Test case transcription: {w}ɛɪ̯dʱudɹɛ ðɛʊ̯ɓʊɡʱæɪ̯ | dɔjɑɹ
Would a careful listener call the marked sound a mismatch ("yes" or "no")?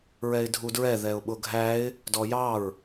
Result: yes